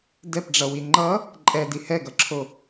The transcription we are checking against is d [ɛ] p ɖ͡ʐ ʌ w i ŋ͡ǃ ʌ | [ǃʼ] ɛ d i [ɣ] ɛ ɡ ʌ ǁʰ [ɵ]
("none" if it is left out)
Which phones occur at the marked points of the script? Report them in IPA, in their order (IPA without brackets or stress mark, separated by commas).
ɛ, ǃʼ, h, o